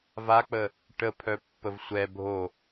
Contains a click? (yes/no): no